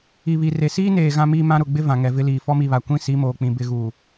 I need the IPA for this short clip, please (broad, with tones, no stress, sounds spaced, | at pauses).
i˨ β i˨ r e˨ s iː˦ n eː˨ ɣ ã˦ m iː˦ m ã˦ ɾ ʊ˨ ɡ͡b ɪ˦ v ã˨ ŋ ɛ˨ v ɪ˦ l iː˨ f ɔ˦ m i˦˨ β a˨ kʷ ĩ˦ s i˨˦ m oː˨ k͡p ĩ˨ b ɪ˦˨ ɣ uː˨